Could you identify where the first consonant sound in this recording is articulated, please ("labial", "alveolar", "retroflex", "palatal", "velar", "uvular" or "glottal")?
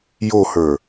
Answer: palatal